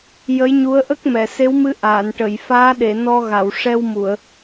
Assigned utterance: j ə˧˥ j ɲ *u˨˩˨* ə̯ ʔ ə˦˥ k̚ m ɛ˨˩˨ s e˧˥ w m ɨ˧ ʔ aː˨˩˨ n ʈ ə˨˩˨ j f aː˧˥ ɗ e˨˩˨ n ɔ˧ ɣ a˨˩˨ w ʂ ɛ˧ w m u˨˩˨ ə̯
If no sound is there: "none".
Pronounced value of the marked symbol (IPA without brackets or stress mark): u˧˥